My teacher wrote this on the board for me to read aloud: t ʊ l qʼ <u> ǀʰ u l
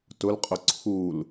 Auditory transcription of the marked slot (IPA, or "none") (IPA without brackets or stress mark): ʊ